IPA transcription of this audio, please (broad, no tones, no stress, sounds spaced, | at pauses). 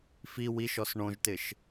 f i w i ʃ ɔ s ɳ õ ʒ t ɪ ʃ